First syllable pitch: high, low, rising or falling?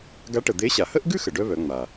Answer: rising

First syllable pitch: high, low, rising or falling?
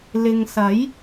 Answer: low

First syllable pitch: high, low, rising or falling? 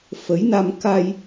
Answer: rising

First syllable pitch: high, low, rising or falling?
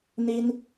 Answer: high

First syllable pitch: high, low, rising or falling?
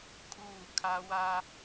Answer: falling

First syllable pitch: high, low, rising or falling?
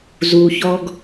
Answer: low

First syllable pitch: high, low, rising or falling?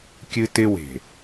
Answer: high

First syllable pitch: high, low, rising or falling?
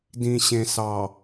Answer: low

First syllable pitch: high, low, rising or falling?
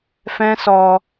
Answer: high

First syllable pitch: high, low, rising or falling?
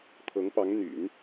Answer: rising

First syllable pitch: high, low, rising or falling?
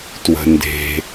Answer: low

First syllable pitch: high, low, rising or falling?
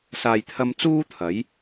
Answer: low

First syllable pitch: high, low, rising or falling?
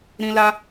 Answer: high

